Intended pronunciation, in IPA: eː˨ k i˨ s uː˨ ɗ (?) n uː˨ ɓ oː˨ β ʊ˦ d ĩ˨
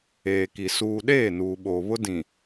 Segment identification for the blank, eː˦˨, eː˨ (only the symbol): eː˦˨